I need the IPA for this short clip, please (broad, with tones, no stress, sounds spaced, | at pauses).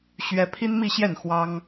ɕ ɥ ɛ˥ pʰ i˥ n m i˥˧ ɕ j ɛ˥˩ n x w ɑ˥ ŋ